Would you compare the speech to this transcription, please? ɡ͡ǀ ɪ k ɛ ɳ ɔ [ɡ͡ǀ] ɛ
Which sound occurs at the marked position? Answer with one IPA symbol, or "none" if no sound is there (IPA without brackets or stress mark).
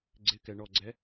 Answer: ɡ͡ǀ